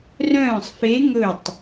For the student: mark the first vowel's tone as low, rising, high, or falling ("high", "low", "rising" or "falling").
falling